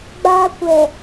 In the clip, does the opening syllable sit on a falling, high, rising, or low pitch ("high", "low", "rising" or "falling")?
high